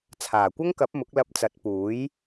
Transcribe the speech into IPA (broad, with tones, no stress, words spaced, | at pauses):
t͡sʰaː˨˩kʷɐ˥ŋkɐ˨˥p̚ mʊ˨˥k̚lɐ˧p̚ t͡sɐ˨˥t̚puː˨˥j